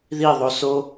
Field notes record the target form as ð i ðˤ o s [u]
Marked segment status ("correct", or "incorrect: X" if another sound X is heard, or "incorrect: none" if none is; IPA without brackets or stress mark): incorrect: o